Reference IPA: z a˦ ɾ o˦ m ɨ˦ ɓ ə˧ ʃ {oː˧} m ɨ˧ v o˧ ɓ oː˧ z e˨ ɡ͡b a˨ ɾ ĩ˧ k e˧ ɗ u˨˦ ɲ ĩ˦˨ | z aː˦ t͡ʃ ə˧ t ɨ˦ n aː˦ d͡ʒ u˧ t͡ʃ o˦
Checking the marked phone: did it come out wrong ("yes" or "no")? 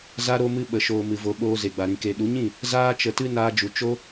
no